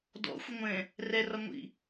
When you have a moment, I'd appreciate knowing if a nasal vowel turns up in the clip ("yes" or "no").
yes